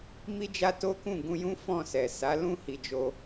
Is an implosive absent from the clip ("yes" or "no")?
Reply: yes